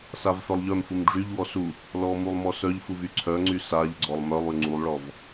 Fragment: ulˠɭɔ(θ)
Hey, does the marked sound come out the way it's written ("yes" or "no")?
no